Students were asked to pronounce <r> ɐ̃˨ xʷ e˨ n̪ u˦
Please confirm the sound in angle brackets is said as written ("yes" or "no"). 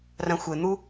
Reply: yes